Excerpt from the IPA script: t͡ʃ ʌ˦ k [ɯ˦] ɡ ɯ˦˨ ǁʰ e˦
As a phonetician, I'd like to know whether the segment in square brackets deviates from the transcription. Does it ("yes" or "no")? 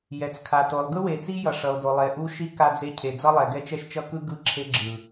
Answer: no